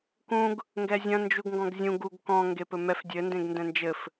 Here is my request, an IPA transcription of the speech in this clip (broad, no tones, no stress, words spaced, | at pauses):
kũɡ | ŋɡɛzʲɐ̃ nd͡ʒuɡŋɡɔ̃ɡzʲũ ɡuɡ kɔ̃ ŋɡepɘmɛf dʲɘ ndẽɡndɛ̃nd͡ʒɘf